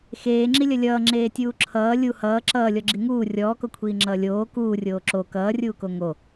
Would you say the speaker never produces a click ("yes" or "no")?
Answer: no